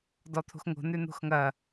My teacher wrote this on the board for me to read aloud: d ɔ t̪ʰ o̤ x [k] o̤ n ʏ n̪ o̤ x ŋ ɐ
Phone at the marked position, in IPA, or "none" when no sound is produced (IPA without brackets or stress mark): ŋ